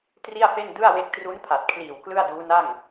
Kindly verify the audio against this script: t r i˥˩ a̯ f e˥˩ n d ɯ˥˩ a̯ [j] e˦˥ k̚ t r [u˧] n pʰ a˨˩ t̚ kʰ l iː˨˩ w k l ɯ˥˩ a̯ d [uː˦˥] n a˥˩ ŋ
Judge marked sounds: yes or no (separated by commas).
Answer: no, no, yes